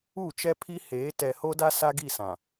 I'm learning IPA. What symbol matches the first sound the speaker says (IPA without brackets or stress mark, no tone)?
u